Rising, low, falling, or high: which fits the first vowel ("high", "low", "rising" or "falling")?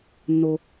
low